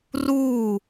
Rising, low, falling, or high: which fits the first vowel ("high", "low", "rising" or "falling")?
falling